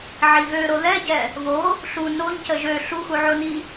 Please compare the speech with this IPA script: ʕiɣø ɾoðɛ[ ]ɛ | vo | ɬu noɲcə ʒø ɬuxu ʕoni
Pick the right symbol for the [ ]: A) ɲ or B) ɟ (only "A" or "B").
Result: B